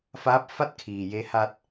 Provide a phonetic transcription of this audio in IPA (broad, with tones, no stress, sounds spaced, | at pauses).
f aː˧˥ p̚ f a˥˨ t̚ kʰ iː˩ j e˧ h a˧ t̚